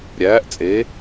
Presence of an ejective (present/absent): present